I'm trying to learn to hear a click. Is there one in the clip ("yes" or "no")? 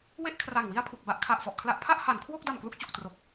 no